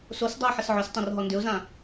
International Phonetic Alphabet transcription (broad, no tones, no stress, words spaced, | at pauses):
sosdˤaʊ̯ ħəsʕʏstˤõr ɦɔndʏʊ̯zã